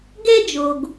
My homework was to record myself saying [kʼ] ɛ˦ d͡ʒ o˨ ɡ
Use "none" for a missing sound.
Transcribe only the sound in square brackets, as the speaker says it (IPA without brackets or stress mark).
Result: ɡ